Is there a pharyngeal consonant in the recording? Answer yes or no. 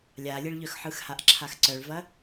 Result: yes